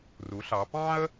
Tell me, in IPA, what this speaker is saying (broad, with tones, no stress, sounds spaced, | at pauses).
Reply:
r u˩˧ ɬ ɑ˩˧ p ɑ̃˥ ə̯